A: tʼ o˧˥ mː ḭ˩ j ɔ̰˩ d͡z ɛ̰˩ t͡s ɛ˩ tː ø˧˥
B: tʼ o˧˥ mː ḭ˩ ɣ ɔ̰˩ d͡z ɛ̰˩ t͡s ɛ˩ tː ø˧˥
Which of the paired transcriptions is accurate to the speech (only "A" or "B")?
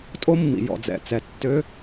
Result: A